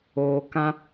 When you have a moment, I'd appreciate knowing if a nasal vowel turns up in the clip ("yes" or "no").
yes